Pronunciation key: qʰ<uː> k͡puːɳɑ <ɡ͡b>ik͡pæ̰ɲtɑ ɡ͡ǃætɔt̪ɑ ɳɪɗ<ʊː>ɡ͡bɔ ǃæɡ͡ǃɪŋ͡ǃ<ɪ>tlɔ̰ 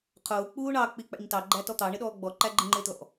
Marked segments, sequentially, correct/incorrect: incorrect: ʊː, incorrect: k͡p, incorrect: ɔː, incorrect: ɪː

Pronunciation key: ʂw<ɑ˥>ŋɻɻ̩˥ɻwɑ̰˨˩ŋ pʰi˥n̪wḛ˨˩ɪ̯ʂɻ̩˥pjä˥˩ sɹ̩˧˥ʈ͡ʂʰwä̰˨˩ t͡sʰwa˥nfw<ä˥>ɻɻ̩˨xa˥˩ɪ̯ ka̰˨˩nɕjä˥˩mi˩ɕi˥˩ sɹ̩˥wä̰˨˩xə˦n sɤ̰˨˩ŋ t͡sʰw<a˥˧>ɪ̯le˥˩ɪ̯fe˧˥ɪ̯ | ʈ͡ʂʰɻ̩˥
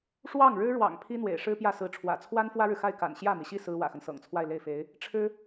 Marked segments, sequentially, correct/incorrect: incorrect: ɑ˥˩, correct, correct

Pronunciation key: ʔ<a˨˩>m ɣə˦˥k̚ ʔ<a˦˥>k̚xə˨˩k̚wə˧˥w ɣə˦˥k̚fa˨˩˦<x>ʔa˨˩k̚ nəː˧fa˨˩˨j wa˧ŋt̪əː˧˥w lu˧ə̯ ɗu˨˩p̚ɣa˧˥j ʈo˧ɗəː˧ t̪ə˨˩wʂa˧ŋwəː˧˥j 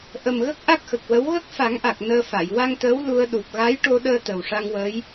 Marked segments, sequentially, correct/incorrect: incorrect: ə˨˩, correct, incorrect: ŋ

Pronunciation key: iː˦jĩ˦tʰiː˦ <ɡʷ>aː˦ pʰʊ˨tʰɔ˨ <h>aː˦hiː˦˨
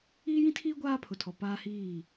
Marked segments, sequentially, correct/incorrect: correct, incorrect: p

